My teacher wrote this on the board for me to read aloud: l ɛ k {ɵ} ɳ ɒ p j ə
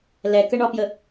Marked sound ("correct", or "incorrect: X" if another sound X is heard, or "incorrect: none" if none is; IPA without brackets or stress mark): incorrect: ə